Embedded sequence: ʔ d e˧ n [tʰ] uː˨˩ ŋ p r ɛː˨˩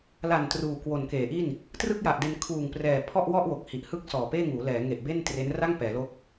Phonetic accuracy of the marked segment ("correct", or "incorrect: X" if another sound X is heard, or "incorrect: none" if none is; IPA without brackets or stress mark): incorrect: kʰ